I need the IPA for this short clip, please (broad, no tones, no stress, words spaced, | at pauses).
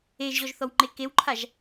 eʒʑɔʒθɔwŋ͡ǃe kewǃʰaʒ